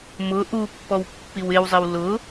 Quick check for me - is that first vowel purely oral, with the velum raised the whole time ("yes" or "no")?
yes